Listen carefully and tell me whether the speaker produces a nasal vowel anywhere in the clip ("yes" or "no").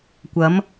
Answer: no